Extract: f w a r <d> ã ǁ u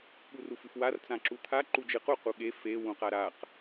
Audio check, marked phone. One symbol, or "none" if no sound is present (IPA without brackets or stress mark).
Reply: t͡s